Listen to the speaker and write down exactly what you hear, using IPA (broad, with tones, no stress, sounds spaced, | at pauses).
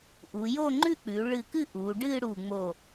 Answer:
ʔ u˩˧ j o˥˧ ŋ͡ǃ ʉ˥˧ k͡p ʉ˩˧ ɭ ɨ˧˩ k ɨ˥˧ ʔ u˩˧ ɖ ɨ˥˧ ɽ u˧˩ ŋ͡m o˧˩